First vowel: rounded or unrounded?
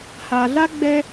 unrounded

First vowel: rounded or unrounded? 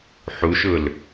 rounded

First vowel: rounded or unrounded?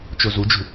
rounded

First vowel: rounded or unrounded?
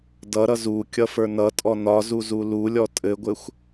unrounded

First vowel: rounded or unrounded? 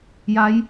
unrounded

